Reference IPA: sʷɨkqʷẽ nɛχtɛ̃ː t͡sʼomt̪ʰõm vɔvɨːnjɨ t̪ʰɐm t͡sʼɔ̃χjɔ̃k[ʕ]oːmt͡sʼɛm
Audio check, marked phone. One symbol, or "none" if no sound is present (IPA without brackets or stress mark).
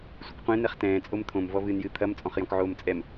ʕ